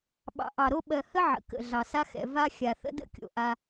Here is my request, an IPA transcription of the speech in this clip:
ɓ ɑ̰˨ ʔ ɑ˨ ɾ o˦ ɓ ɜ˨ h ə˦ ʕ ə̰˨ k ə̰˨ ɮ ɑ˨ s a˦ x ɛ̰˨ v a˦ xʲ a˨ θ ə̰˦ d ə̰˦ kʲ o̰˨ ʔ a˦

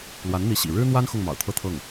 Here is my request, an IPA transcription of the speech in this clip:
l w a˧˥ n n̪ i˧˥ ɕ ḭ˨˩ ɻ ɻ̩˥ n̪ w a˥ n x ʊ˥˩ ŋ m ɑ̰˨˩ ʊ̯ t̪ʰ ɤ˥˧ t̪ʰ ɤ˥˩ ŋ

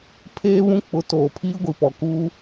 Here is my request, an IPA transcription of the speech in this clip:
pʰ eː˦ β ũ˦ k͡p ʊ˨˦ t oː˨ pʰ iː˦ ɡʷ i˨ p ɔ˨ k uː˦

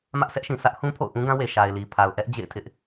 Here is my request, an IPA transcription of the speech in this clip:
m ä˦ ʔ sʰ ɛ˦ ʔ ʃ ĩ˨ sʰ ä˦ ʔ h ũ˦ pʰ o̰˦˨ ʊ̯ ʔ ũ˦ ɡ ã˦ w e˨ ʃ a˨ ɪ̯ l i˨ pʰ a˨ ʊ̯ ʔ ɛ˦ ʔ d͡ʑ ḛ˦˨ ɪ̯ tʰ ɪ˦ ʔ

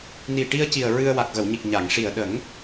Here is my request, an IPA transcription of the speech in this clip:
n i˨˩ ʈ i˧ ə̯ c i˨˩ ə̯ ɹ ɨ˧ ə̯ w a˨˩ k̚ ɣ ə˨˩˨ w ɲ i˨˩ k̚ ɲ a˨˩˨ ŋ ʂ i˨˩ ə̯ ɗ ə˨˩˦ ŋ

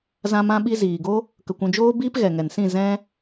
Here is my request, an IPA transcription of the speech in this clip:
z ã˦ m ã˦ ɓ i˦ z iː˨ ɡ o˦ | k ə˧ kʷ ũ˧ d͡ʒ oː˦ b iː˦ p ɣ ɛ˨ ŋ ɛ˨ n s ĩ˦˨ z ɛ̃˦

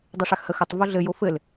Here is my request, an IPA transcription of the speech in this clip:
dˤ e ʂ a x h ə x ɘ tˤ v o ɮ ɘ j o f ɘ l

